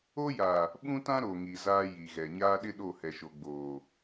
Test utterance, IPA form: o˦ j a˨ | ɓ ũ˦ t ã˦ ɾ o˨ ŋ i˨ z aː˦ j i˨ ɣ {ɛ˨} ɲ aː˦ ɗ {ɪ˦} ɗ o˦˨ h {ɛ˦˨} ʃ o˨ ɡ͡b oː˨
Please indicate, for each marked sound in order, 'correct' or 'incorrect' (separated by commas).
correct, correct, incorrect